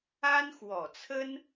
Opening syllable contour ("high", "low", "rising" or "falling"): high